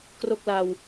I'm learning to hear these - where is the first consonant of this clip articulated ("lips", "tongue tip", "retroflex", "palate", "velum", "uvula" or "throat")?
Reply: velum